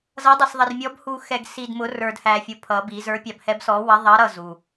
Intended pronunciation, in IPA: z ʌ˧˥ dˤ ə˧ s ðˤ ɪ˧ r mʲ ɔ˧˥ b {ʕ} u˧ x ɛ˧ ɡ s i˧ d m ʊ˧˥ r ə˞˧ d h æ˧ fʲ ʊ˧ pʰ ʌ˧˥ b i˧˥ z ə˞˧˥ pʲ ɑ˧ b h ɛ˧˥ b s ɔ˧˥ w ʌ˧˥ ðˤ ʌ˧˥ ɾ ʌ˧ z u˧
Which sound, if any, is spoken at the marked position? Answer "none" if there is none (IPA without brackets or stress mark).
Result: h